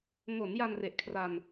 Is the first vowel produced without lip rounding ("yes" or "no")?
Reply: no